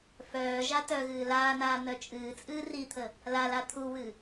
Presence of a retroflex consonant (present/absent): absent